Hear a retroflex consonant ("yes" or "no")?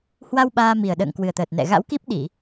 no